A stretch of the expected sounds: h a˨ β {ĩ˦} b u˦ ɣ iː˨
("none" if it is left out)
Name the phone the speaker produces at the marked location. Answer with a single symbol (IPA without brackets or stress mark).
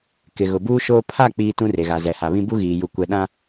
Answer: ĩ˦